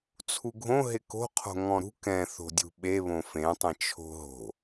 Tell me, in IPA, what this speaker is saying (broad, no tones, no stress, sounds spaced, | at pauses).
t͡sʰ u ɡʱ õ ɦ ɪ k o̤ qʰ o̤ ŋ ɔ̃ ɾ ṳ k ɛ̃ θ o̤ dʲ ṳ ɓ e β õ f ẽ tˤ ɛ̃ t͡ʃʰ o̤ ɦ o̤